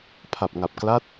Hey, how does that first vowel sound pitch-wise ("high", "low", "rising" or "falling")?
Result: low